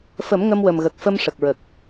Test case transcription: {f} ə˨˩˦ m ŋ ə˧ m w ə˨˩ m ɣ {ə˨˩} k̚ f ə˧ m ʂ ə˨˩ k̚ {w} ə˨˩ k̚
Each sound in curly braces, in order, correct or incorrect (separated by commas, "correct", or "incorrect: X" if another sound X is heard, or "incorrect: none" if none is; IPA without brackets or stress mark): correct, correct, incorrect: ɹ